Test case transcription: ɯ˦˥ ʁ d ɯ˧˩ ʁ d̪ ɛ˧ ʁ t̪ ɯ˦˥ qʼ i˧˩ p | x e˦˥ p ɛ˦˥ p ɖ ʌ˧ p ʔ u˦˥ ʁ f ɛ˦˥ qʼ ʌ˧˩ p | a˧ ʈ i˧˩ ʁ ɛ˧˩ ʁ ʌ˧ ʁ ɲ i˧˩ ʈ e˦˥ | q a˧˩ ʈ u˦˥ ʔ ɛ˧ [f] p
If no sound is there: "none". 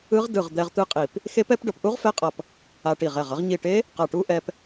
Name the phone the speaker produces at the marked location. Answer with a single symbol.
none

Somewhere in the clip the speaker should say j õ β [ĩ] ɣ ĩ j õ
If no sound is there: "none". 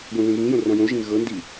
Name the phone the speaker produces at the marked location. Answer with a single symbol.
ẽ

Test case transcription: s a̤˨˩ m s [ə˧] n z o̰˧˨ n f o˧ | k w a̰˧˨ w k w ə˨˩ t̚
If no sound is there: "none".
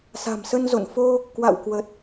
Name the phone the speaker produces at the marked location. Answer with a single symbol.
ə˧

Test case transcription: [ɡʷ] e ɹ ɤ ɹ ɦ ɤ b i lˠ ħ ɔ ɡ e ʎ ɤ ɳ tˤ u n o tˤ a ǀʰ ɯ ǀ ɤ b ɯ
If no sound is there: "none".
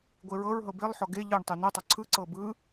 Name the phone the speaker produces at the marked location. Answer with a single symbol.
ɡʷ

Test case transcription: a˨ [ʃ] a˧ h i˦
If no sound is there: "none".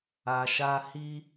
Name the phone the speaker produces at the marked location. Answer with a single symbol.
ʃ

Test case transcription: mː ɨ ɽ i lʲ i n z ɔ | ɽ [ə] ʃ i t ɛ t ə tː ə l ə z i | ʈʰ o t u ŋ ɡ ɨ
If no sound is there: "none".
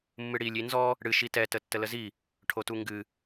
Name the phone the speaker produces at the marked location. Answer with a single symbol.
ɨ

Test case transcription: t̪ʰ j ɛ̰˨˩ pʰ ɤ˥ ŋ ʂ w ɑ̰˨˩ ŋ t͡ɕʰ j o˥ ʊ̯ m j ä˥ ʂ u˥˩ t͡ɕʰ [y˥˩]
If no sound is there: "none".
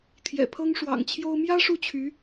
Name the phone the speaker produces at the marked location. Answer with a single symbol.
y˧˥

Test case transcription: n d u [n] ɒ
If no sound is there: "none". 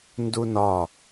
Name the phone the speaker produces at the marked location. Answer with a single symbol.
n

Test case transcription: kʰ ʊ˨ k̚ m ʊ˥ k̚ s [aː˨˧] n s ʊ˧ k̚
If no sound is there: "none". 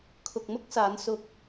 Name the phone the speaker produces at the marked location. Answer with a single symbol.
aː˨˧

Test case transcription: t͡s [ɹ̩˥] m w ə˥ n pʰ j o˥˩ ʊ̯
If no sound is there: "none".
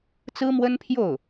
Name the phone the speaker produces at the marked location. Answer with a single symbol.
ɹ̩˥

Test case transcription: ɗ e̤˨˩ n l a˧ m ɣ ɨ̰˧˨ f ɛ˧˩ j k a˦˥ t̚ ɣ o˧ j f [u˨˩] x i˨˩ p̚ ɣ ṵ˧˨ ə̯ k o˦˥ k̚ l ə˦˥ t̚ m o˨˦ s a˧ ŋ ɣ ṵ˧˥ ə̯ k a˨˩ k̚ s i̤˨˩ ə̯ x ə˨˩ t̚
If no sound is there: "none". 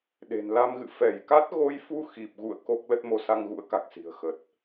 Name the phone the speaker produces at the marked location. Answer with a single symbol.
u˧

